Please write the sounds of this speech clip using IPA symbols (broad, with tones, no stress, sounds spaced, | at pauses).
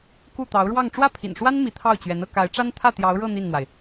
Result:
k u˥˩ t̪ ɑ˧˥ ʊ̯ ɻ w ɑ˥˧ ŋ ʈ͡ʂ w ä˥˩ pʰ ḭ˨˩ n ʂ w a˥ n m i˧˥ t̪ʰ ɑ˥˩ ʊ̯ t͡ɕ ɥ ɛ˧˥ n ɤ˥˩ k a˧˥ ɪ̯ ʈ͡ʂ a˥ n t̪ʰ ä˥˩ t̪ j ɑ˧˥ ʊ̯ ɻ ɤ˥˧ n̪ i˥˩ n n̪ w a˩ ɪ̯